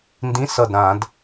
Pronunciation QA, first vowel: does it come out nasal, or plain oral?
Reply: nasal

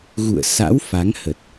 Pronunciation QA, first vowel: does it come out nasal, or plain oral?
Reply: oral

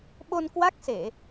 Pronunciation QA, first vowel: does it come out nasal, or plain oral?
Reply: oral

